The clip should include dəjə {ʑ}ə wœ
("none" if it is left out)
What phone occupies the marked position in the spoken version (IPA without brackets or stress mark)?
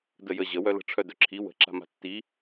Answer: ʑ